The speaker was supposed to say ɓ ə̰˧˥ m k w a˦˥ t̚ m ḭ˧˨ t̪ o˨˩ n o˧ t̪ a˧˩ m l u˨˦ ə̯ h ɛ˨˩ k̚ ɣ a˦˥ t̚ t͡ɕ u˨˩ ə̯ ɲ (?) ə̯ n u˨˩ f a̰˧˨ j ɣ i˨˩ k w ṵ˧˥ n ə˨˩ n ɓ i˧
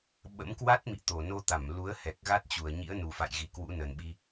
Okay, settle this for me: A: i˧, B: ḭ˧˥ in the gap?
B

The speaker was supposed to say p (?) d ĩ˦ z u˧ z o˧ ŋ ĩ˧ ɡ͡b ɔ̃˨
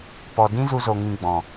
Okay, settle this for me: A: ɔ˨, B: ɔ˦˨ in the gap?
A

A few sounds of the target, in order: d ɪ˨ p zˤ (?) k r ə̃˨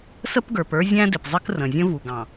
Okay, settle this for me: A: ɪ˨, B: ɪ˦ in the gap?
B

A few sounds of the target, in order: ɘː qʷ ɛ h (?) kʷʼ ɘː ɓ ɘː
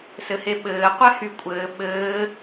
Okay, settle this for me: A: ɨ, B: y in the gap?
B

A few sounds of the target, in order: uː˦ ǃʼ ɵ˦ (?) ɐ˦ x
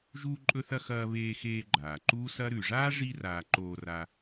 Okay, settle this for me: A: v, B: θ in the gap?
B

